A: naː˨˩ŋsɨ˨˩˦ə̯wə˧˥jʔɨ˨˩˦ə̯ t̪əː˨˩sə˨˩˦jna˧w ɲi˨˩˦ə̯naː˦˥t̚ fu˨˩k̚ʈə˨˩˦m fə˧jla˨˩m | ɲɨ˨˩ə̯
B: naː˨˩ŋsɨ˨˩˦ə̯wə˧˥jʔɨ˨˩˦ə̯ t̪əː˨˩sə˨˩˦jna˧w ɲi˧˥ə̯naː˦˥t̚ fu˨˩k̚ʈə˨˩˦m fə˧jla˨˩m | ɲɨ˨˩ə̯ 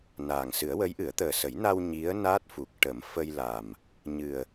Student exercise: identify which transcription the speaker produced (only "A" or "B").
B